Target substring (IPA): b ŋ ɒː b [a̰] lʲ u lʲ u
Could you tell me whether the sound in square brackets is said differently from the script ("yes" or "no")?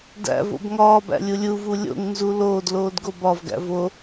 yes